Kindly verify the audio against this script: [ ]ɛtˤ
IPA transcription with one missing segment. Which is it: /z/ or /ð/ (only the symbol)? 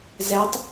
z